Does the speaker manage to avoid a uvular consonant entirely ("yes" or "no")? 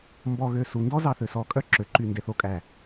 yes